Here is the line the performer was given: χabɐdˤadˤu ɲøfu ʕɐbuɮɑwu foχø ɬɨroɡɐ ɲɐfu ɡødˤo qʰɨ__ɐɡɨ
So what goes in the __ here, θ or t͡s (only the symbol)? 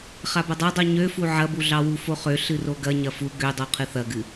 θ